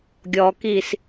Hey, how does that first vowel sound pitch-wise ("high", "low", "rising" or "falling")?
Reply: low